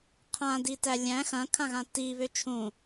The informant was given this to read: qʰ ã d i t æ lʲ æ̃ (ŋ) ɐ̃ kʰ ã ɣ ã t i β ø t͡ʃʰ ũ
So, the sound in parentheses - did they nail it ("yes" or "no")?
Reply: no